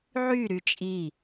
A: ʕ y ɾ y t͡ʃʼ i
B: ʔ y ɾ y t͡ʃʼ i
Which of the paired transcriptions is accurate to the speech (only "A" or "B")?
A